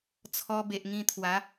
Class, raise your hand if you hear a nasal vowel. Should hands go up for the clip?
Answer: yes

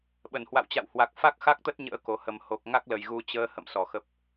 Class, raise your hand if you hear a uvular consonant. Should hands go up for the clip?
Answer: no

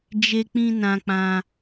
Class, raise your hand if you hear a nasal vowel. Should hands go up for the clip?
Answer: yes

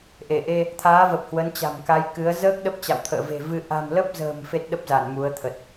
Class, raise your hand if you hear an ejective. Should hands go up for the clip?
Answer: no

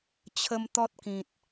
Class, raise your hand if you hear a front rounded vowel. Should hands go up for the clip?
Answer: no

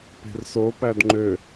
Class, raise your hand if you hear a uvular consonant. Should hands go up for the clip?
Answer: no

